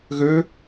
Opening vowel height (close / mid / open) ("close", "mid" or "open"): mid